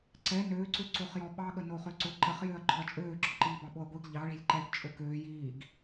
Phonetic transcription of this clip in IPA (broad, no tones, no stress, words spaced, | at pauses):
ǀɛ nøːǀø ǀoχjɔɓɑɠə noχøǀʊ ǃəχjøɐ̯ ǃɔ̤ɐ̯t͡ʃʼøːǁɔ̤ǃiː bɑɓoɐ̯ɡʷiɡ ʎɑɭi̤lʲ ǃɛɡ t͡ʃʼʊkøːj iːɡ